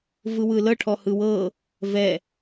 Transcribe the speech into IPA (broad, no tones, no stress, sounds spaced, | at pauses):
v ɯ w ɯ l ɤ ʈʰ ɔ h ɯ w ɤ | v ɛ